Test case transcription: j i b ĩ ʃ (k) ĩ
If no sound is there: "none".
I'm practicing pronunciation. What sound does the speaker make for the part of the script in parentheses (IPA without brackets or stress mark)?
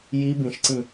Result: ǀ